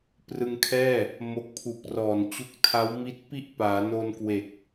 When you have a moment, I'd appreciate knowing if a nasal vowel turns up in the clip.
no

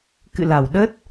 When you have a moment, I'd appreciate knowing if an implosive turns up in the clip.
yes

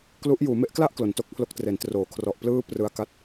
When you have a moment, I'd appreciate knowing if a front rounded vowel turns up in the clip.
no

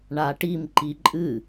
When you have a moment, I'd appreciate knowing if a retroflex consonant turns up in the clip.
yes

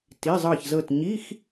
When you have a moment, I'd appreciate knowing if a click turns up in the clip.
no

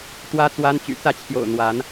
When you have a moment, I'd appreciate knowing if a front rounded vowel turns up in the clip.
yes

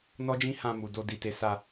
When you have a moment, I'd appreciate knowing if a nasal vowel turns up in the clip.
yes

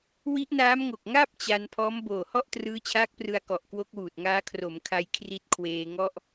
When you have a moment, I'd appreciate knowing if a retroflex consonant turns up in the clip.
no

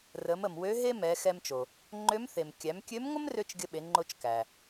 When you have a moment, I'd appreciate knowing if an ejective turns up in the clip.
no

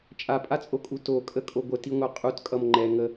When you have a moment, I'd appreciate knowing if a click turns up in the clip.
yes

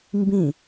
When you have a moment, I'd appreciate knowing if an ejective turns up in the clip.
no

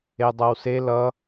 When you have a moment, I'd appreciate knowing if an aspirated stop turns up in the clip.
no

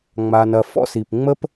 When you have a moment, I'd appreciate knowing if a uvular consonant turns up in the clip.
no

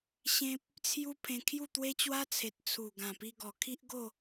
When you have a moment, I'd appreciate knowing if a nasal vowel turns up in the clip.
yes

